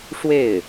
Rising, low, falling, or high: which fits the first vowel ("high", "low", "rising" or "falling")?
falling